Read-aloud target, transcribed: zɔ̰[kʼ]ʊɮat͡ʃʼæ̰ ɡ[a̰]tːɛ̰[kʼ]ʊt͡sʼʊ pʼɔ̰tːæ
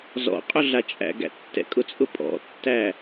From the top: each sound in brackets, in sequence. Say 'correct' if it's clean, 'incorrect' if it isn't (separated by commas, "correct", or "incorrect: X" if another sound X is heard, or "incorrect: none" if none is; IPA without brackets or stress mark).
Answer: incorrect: qʼ, incorrect: æ̰, correct